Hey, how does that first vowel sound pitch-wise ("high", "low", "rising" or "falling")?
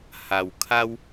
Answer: low